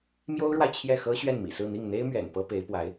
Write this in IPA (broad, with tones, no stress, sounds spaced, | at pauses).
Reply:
m j o˥ ʊ̯ ɻ w a˨ ɪ̯ t͡ɕʰ j ɛ˥˩ x ɤ˥ ɕ ɥ ɛ˥˩ n m ḭ˨˩ s ɹ̩˥˧ n̪ i˥˩ ŋ n̪ e˥ ɪ̯ m ɥ ɛ̰˨˩ n p ɤ˥ p e˧˥ ɪ̯ p w a˧˥ ɪ̯